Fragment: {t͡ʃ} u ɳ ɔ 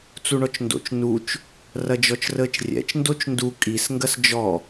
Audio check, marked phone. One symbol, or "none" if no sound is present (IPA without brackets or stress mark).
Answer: t͡s